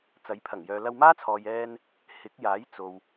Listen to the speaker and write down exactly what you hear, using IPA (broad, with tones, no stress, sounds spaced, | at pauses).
t͡s ɐ˨˥ j pʰ ɐ˨˩ ŋ j œː˨ l ɐ˧ w m aː˥ t͡sʰ ɔː˨ j ɛː˧ n | h ɪ˨˥ k̚ j aː˨˥ j t͡s o˨ w